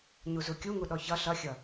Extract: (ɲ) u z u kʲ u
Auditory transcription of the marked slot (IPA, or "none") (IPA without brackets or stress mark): ɲ